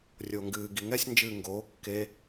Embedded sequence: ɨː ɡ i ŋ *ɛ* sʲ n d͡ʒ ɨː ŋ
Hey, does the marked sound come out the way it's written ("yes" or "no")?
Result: yes